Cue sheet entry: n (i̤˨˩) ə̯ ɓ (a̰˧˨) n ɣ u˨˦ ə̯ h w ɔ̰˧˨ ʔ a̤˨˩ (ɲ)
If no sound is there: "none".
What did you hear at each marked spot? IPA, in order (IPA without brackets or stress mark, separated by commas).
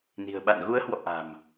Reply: i̤˨˩, a̰˧˨, m